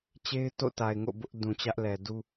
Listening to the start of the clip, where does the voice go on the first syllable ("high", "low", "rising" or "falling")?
high